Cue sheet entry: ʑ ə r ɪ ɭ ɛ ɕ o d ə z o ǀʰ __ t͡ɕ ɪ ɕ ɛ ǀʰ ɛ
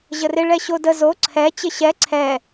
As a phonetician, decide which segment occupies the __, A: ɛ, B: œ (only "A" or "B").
A